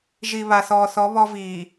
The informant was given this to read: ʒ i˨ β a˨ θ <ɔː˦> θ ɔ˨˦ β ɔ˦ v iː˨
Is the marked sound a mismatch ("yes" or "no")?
yes